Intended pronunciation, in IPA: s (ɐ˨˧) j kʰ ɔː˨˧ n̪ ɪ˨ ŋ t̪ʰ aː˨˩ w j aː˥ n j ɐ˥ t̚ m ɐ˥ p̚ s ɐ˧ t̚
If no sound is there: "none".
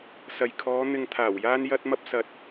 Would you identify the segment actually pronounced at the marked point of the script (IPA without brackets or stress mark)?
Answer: ɐ˨